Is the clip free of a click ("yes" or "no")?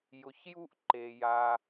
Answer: no